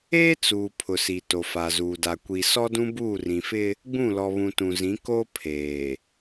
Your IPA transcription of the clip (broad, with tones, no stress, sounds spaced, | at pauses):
eː˦ t͡s uː˨ pʰ ʊ˨ s i˨ t o˨ f a˨ z uː˨ d a˨ kʷ i˨ s ɔ˦ d ũ˦ b uː˦˨ r ĩ˨ f ɪ˦ | ɡ͡b ũ˦˨ l ɔ˨ β ũ˨ t ũ˨ z ĩ˨˦ k o˦ pʰ eː˨